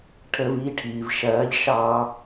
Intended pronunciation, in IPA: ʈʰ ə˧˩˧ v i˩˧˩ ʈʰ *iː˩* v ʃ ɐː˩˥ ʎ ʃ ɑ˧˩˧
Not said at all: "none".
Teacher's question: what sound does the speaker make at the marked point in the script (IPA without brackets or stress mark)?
iː˩